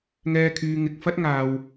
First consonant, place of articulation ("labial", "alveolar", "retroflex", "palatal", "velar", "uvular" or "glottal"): velar